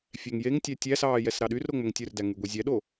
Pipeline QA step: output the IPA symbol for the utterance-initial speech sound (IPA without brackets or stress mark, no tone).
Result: fʲ